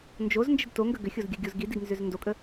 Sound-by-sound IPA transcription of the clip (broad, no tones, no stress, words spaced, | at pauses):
nd͡ʒoznd͡ʒəd toŋɡə ɡʏxʲozɡʲəɡʲoz ɡidiɡnzʏz ndokʼə